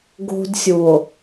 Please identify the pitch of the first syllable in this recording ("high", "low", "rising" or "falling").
high